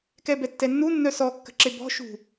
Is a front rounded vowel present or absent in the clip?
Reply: present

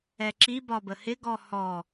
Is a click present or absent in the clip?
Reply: present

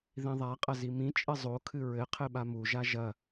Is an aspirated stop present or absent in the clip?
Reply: present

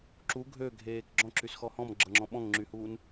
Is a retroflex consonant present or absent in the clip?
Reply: absent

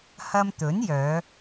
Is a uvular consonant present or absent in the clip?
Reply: absent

